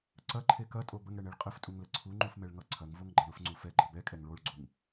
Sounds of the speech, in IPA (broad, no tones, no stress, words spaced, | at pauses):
ǀɐǃʰe kɐtʼo bəŋɽɛɳeɭ qʼəftʼuŋlə ǀʰuŋ͡ǃufmɛɭŋʌ ǀʰɐŋvoŋɡ͡ǃɐɳ ʊfŋ͡ǀu fɛɡ͡ǃʌ bɛkʼɛŋ ɭoɭɡ͡ǀuŋ